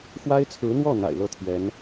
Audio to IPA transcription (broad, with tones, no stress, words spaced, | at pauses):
xwa˥ɪ̯t͡sʰɹ̩˧˥n̪wɔ˥˩ n̪a̰˨˩ɪ̯lɤ˥˩t̪ʰɥɛ˧˥n